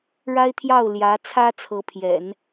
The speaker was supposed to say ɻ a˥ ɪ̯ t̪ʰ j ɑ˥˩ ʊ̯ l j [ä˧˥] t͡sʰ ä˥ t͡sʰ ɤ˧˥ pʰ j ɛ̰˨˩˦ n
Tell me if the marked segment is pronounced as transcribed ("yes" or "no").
yes